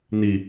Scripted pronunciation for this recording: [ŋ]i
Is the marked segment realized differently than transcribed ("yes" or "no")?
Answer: yes